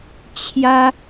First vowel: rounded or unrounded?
unrounded